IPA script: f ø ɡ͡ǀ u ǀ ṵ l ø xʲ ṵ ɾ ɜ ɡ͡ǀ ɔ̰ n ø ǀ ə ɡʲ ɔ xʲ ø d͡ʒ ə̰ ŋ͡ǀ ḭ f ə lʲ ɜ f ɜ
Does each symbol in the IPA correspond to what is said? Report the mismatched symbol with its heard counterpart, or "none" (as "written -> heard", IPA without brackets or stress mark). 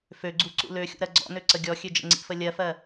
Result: none